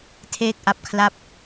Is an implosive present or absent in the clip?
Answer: absent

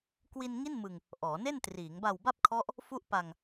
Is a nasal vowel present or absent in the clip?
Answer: absent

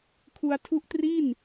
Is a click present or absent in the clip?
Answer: absent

